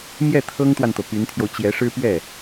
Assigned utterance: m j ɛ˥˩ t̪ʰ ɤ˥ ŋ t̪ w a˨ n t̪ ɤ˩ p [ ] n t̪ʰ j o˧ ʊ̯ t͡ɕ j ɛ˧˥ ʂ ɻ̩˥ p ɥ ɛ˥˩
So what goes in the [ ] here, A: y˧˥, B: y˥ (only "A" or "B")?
A